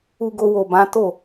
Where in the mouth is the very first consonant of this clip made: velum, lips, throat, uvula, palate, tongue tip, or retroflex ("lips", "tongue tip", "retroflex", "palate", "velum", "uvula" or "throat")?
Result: velum